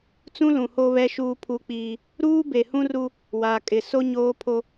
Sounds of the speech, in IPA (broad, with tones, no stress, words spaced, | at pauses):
t͡sũ˦lũ˨ ho˦βɛ˦ʃuː˦ pʰu˦k͡piː˦ | ɾuː˦be˨hũ˦ ru˦ | waː˨kʼɪ˨so˦ ɲoː˦pʰo˦